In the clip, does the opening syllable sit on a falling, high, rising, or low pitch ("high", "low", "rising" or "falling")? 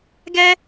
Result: high